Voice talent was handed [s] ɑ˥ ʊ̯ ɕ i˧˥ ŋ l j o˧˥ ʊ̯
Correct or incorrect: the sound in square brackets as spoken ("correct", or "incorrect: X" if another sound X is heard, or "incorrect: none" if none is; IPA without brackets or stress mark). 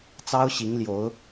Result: incorrect: t͡s